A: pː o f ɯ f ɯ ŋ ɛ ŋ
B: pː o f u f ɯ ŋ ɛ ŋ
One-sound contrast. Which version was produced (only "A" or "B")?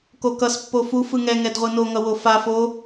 B